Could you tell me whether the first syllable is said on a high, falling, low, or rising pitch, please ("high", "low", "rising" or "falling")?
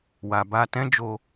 low